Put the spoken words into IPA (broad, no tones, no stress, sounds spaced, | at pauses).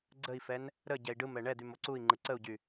ɡ͡ǀ ə i̯ f ɛ n | ɾ ə ɟ ɛ i̯ ɖ ɯ m ɛ ɳ ɛ d̪ y m o ǀ u i̯ ŋ͡ǃ ɯ ǀ ə u̯ ɟ y